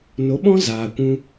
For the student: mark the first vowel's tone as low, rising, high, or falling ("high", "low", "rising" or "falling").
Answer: rising